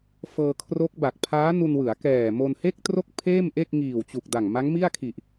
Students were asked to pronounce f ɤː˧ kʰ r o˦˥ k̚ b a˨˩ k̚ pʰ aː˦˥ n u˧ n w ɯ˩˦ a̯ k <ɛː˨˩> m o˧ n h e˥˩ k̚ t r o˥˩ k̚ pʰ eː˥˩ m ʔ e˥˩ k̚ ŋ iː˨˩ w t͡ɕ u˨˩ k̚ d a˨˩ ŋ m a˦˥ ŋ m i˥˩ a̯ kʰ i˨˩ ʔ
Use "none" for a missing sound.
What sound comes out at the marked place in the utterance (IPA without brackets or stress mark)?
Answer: ɛː˨˩